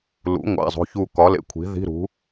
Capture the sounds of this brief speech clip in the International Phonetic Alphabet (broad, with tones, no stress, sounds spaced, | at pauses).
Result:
l ṵ˩˥ ŋʷ æ̰˩˧˩ zˤ o̤˩˧˩ ç u˧˩ k ɒ˩˥ l ḛ˩˧˩ kʷʰ i̤˩˥ ð i̤˧˥˧ ɾ ṳ˩˥